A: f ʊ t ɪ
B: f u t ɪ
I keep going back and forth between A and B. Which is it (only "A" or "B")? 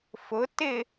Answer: A